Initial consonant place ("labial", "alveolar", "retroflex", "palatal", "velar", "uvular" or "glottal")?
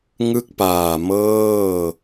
velar